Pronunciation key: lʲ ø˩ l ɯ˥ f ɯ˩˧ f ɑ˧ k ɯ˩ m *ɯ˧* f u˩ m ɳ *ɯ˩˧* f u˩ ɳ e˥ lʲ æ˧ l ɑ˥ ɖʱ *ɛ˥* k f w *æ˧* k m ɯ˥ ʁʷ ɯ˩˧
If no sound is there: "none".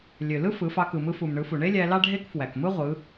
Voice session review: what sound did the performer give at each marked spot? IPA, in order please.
ɯ˧, ɯ˩˧, e˥, æ˩

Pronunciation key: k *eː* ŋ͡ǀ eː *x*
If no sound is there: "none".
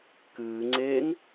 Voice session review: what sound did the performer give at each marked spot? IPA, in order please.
ɨː, ŋ

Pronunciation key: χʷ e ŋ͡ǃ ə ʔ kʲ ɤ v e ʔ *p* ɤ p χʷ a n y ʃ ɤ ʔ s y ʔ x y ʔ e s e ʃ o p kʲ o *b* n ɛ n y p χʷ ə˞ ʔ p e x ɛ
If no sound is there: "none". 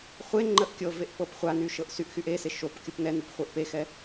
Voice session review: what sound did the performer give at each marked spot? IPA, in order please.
p, p

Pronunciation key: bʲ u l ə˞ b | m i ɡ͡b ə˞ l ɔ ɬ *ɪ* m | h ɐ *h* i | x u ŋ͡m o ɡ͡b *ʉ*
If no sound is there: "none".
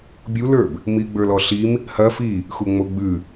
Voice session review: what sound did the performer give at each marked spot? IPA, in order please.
i, f, ʉ

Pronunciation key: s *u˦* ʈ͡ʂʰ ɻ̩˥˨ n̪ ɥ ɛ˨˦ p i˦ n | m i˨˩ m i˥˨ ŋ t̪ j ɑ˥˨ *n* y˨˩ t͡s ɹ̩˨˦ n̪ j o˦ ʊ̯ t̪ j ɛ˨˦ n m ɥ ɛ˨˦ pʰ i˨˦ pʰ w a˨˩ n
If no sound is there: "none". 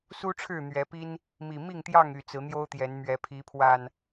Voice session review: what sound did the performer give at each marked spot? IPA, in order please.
u˦, ŋ

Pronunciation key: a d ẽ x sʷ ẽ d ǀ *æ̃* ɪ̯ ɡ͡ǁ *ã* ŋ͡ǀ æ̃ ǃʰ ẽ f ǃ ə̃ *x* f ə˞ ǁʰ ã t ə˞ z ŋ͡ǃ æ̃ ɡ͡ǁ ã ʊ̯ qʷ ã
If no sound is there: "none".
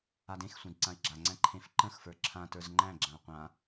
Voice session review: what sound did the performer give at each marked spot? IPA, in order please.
ã, a, x

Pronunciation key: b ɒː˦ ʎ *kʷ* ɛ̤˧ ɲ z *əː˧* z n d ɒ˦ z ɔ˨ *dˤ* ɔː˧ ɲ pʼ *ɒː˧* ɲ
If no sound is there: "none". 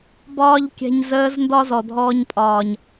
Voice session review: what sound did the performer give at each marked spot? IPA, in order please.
kʲ, əː˧, dʱ, ɒː˨

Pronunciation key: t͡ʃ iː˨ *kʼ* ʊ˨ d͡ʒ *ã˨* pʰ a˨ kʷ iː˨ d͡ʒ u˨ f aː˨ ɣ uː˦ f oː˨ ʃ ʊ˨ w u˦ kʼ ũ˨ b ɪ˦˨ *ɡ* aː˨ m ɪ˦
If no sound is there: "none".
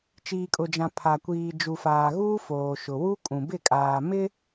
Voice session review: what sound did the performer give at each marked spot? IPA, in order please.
kʼ, ã˨, kʼ

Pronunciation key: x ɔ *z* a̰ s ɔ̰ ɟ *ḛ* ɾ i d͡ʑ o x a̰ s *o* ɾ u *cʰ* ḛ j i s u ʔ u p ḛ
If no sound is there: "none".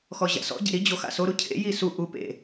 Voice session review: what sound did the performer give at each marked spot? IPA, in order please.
ʑ, ḛ, o, cʰ

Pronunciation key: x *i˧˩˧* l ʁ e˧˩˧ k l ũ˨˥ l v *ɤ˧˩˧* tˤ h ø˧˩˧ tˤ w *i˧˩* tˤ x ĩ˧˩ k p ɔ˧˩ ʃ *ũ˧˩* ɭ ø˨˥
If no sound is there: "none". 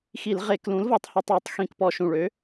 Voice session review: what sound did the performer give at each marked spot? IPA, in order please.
i˧˩˧, ɤ˧˩˧, i˧˩˧, ũ˧˩

